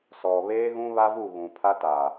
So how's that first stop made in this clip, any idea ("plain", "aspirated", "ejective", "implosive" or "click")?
aspirated